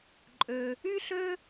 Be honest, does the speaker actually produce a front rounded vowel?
yes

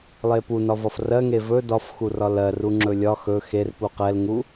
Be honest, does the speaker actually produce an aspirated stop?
no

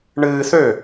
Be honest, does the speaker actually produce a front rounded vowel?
yes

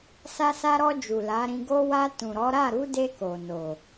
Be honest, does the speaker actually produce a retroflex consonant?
no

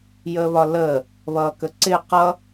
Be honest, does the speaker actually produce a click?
yes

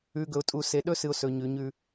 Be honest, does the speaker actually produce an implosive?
yes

